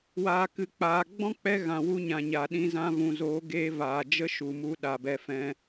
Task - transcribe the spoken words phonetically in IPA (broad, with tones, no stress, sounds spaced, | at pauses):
w aː˨ k ɨ˨ k͡p aː˨ ɡ͡b ɔ̃˦ k͡p ɛ˧ ɣ ã˨ w u˧ ɲ ã˨ ɲ a˨ ɗ ĩ˧ z ã˧ v ũ˨ z oː˨˦ ɡ eː˧ v aː˨ d͡ʒ ə˦ ʃ u˨ m u˧ ɗ a˨ b ɛ˧ f ɛ̃˧